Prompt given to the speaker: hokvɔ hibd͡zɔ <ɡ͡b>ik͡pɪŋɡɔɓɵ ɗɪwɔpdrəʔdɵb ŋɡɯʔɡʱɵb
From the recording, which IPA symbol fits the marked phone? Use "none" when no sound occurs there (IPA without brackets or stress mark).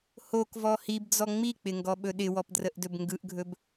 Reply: ŋ͡m